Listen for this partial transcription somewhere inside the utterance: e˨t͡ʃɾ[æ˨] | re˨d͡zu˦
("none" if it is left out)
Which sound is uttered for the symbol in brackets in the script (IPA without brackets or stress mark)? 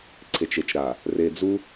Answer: a˨